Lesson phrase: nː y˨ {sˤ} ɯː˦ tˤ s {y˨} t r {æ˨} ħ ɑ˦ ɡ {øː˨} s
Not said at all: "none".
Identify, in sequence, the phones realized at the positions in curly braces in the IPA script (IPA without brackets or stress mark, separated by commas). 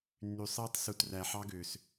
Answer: sˤ, u˨, æ˨, øː˨